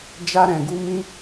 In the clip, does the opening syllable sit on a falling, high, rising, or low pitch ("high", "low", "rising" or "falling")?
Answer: high